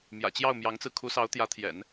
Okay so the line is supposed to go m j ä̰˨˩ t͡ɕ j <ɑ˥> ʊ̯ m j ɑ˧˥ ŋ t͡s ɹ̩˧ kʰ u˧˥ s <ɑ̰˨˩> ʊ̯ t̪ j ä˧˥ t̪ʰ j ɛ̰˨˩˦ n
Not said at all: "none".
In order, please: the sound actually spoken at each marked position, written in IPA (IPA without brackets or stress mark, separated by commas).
ɑ˥˩, ɑ˧˥